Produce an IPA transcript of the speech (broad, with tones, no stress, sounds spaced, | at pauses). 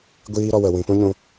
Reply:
ɡʷ iː˧ ɾ ɔ˧ w ə˨ w ĩ˨ p ũ˦ ɲ ũ˧